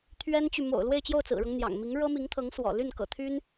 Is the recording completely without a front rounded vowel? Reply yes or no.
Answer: no